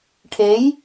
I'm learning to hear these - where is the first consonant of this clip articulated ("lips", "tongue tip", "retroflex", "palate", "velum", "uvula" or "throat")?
retroflex